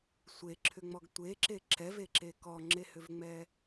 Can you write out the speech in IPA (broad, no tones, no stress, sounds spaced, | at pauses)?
sʷ e ǁʰ ʏ ŋ͡m ɔ ɡ tʷ e ǁ e ǁ ɛ v e ǁ e k ɔ ŋ͡ǁ e h ʏ v ŋ͡m ɛ